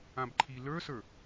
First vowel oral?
no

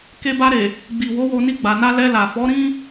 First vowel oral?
yes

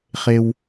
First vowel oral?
yes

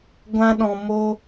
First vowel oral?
no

